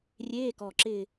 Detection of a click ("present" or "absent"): present